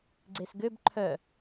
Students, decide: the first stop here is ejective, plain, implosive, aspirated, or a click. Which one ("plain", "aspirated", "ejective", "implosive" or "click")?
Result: click